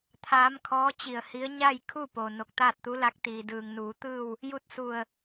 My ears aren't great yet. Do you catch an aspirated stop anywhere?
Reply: yes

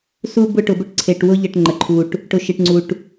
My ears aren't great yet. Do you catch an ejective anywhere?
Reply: no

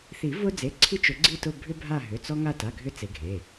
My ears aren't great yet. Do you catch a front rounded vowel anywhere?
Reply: yes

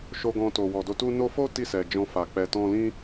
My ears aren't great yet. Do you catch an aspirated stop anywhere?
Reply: no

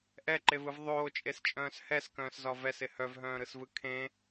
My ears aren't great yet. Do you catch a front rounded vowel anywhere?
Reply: yes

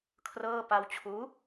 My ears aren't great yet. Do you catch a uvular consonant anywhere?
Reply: no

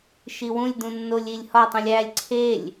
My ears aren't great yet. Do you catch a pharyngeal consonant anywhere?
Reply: no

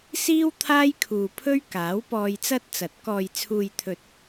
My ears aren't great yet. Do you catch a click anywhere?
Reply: no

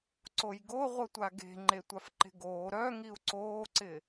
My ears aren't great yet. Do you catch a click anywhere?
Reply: yes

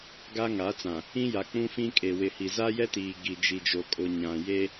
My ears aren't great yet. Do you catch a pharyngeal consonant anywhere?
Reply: no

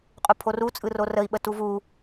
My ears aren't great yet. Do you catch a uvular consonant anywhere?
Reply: yes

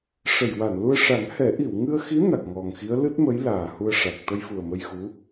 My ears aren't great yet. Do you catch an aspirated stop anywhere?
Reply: no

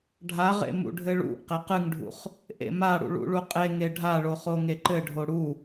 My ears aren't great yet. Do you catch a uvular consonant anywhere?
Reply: yes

